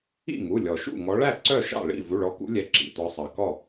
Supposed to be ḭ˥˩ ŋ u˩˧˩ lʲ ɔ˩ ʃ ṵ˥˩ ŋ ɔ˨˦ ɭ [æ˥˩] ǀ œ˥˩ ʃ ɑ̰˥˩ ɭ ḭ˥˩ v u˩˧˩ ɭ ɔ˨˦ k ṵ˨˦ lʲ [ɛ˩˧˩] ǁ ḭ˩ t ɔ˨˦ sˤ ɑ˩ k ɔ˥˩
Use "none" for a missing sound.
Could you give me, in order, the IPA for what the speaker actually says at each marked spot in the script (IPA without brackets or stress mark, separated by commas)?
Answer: æ˥˩, ɛ˨˦